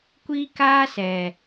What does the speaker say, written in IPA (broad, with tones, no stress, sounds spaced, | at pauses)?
kʷ iː˦ k aː˦ s ɛ˨